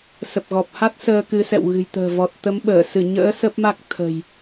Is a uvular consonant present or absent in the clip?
absent